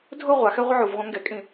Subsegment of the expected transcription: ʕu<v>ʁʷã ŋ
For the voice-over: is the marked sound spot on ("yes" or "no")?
yes